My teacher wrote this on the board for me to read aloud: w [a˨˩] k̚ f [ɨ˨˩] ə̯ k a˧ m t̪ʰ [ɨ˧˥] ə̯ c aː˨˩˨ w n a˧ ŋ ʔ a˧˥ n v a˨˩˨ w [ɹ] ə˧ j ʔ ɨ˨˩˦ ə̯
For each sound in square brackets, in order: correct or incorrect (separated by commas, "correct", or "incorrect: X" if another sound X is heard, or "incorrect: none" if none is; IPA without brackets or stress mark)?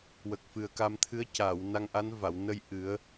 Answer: incorrect: ə˨˩, correct, correct, incorrect: n